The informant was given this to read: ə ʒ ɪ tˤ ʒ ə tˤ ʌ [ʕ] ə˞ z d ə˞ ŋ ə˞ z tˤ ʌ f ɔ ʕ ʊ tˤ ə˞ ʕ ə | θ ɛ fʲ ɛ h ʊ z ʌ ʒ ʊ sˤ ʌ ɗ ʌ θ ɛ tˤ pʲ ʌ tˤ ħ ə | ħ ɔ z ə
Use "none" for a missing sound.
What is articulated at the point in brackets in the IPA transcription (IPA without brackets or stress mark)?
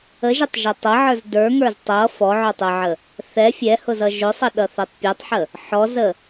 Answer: ʕ